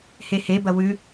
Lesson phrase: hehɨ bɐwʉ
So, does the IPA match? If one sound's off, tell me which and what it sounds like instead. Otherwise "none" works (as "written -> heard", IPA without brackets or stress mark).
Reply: ɨ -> e